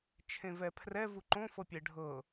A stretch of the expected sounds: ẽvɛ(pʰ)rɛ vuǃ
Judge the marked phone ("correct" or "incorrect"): correct